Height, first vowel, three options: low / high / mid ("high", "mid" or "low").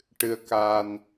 high